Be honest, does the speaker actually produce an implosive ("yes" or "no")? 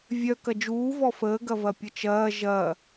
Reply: no